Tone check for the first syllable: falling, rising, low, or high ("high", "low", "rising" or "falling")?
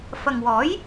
low